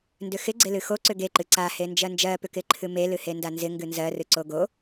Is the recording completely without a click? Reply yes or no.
no